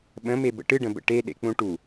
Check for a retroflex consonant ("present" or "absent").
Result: present